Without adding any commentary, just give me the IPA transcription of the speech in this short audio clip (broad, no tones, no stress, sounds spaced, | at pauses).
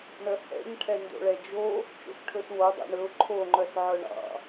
ɳ œ h ɛ̰ ɲ ʈʰ ɛ n d o̰ ɭ ɛ d͡ʒ o | t͡ʃ o̰ s ʈʰ ɵ s w o dˤ ɛ̰ ɳ ɵ ʊ̯ ǃʰ o ŋ͡ǃ œ s ʕ œ ɳ ɑ̰